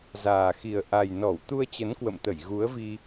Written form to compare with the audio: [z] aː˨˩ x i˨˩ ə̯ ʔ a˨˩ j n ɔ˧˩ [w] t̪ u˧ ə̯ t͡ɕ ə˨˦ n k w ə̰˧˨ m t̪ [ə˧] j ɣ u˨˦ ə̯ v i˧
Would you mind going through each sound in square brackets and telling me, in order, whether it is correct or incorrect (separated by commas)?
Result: correct, correct, incorrect